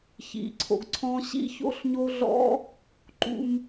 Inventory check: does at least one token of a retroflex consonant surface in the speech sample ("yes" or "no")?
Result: no